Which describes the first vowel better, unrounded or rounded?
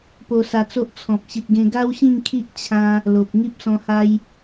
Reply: rounded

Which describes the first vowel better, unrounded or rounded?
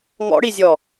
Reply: rounded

